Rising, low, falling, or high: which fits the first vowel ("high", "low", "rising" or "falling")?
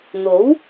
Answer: rising